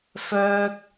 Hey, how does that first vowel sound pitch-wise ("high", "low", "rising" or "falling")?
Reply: high